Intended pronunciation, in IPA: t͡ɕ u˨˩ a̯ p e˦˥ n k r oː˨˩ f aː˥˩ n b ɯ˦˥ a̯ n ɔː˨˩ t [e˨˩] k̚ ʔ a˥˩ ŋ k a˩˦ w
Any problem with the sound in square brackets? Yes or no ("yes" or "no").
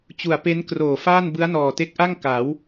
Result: yes